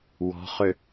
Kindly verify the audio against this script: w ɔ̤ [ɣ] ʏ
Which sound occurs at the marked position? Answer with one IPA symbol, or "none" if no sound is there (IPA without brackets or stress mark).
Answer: χ